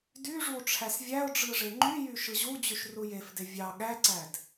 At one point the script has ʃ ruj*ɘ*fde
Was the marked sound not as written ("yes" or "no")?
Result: yes